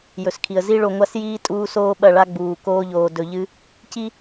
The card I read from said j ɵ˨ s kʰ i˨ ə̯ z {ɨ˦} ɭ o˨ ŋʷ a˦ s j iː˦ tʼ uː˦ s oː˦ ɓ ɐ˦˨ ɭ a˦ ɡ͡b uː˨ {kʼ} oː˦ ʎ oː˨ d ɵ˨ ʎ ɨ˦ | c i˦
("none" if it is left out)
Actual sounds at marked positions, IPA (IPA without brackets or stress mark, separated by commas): i˦, k